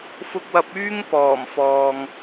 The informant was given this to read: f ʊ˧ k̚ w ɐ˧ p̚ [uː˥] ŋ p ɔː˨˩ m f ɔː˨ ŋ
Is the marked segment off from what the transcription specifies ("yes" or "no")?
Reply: yes